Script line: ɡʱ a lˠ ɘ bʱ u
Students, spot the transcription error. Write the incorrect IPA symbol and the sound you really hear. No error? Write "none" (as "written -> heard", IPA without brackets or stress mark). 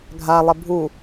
none